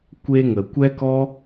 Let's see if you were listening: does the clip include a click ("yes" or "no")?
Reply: no